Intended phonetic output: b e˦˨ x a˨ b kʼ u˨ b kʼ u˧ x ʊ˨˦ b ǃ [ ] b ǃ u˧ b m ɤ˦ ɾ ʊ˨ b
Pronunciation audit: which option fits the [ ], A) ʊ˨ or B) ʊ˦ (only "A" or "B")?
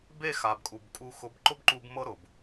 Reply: B